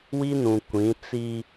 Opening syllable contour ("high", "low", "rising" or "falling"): high